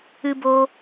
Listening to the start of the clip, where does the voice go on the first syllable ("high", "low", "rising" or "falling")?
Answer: high